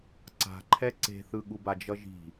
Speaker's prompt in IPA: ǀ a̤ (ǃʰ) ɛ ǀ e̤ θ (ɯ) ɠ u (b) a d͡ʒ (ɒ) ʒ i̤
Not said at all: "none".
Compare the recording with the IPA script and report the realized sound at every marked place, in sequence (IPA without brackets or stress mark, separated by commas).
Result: ǃʰ, ɯ, b, ʌ